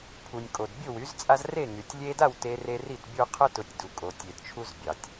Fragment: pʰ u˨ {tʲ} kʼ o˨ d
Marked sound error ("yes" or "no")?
yes